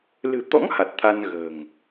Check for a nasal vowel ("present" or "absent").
absent